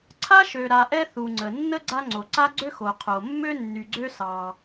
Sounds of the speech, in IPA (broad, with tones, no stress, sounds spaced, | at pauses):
ǀʰ a˥ ʃ ø˨ ɾ a˨ ʔ ɛ˦ θ u˨ ŋ͡ǀ ə˩ nː ə˥ ɡ͡ǀ a˦ ŋ͡ǀ o˩ ǀ a˥ ɡ͡ǀ ø˥ x o˩ qʰ o˩ mː ø˥ nː y˩ ɡ͡ǀ ø˦ s ɑ˩